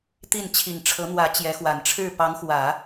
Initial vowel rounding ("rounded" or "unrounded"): unrounded